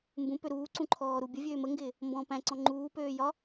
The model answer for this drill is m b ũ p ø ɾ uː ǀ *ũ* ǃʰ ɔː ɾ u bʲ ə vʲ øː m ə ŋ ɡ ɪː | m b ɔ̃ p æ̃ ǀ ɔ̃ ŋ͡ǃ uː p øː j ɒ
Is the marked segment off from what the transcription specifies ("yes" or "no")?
no